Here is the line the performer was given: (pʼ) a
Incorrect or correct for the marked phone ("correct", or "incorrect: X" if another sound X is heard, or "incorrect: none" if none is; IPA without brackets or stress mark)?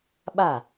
incorrect: ɓ